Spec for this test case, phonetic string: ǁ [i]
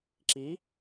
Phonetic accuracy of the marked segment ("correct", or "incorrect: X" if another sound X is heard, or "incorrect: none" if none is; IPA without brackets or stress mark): correct